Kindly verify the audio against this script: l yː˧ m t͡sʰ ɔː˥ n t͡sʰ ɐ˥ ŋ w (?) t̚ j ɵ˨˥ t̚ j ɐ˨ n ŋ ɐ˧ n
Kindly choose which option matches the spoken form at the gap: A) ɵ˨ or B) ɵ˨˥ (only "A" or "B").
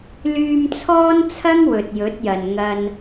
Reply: A